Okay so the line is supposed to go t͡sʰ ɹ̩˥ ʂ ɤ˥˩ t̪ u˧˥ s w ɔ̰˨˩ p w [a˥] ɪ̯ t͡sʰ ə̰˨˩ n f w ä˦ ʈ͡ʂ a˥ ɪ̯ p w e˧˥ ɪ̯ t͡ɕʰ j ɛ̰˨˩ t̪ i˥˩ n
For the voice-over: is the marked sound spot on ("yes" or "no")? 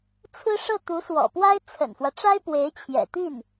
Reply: yes